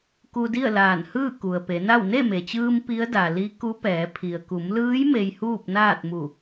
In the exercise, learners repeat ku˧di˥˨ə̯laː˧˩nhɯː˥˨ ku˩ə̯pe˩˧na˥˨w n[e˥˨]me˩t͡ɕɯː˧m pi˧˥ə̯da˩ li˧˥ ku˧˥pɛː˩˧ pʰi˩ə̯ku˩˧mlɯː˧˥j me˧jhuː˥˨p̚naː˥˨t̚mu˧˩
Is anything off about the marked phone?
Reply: no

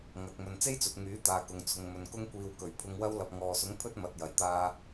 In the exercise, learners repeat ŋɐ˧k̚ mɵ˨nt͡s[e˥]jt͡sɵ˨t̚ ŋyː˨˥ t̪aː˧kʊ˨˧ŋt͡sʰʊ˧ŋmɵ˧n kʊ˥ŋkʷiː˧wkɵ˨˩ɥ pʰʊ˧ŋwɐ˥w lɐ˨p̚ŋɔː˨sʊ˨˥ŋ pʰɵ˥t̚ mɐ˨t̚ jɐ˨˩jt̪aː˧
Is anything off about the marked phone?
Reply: no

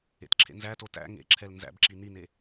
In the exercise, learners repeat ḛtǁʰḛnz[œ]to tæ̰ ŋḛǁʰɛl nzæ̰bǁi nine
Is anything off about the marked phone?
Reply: yes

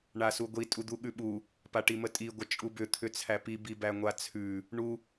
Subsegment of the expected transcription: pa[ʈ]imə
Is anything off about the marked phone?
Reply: no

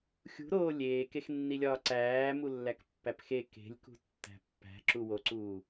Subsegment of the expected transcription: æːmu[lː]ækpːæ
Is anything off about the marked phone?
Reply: no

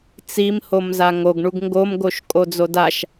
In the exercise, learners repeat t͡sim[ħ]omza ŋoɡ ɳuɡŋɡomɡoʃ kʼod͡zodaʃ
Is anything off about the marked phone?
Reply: yes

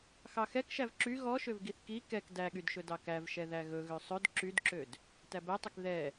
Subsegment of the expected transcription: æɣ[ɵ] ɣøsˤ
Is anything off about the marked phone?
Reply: no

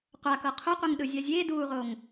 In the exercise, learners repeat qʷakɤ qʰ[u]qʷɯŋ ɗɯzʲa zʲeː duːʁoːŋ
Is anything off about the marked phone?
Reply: no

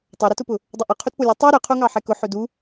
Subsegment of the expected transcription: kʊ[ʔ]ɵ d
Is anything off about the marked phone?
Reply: yes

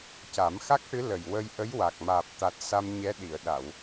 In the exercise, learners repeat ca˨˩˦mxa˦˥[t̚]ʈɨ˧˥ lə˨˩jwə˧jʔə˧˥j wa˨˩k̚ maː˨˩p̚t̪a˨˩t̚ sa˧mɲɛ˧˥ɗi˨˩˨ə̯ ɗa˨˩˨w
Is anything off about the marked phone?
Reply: yes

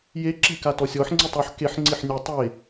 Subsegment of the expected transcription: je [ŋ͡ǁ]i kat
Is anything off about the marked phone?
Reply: yes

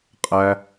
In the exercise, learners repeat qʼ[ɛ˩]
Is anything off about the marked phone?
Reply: yes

